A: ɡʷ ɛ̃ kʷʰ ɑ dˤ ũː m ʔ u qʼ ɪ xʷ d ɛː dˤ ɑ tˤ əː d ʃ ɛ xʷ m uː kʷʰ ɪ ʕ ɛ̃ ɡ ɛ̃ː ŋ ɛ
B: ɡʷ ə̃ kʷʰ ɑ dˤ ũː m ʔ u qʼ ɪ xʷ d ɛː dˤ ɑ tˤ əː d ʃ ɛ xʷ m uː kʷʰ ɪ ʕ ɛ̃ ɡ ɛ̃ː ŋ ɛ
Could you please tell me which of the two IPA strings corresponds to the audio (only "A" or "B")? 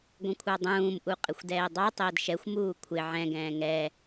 B